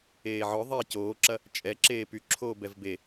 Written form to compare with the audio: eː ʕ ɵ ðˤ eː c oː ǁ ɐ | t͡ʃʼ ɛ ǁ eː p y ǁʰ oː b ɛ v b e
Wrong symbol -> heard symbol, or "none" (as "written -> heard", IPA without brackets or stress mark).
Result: ɵ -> œ